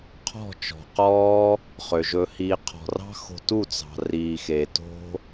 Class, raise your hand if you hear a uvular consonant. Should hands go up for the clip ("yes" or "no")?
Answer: yes